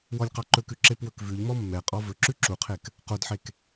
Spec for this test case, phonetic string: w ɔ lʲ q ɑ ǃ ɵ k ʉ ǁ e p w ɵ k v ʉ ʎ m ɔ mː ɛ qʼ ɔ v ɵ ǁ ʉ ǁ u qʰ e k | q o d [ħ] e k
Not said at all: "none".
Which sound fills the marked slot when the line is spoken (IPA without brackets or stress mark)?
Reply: ħ